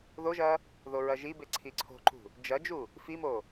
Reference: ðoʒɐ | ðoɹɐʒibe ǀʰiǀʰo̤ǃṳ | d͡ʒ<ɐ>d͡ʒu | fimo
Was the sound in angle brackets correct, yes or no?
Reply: yes